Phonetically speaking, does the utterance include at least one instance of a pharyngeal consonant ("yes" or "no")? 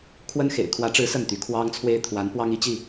no